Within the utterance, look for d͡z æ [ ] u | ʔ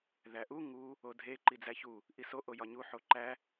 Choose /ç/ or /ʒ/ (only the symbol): ç